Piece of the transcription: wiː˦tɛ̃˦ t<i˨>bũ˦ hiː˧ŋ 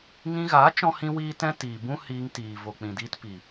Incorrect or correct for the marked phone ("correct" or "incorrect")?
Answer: incorrect